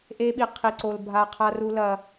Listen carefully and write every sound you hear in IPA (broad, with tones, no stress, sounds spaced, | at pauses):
ʔ e˦ ɓ i˧ qʰ i˧ ǀ o˧ l bʱ a˧ qʰ a˦ r u˦ l ɐ˧